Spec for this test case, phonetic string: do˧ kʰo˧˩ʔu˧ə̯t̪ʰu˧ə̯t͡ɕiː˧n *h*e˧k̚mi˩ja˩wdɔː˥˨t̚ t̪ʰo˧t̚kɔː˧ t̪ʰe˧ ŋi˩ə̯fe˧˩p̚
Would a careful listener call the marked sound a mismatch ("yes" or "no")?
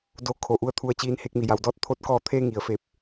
no